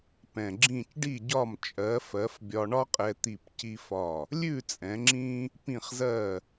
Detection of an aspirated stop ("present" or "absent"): absent